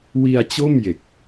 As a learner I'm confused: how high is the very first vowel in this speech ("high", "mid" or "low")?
high